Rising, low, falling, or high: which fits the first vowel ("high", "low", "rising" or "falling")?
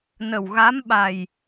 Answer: low